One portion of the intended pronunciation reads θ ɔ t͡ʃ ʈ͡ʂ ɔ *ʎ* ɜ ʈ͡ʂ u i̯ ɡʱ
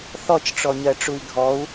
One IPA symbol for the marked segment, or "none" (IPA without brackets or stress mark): ɲ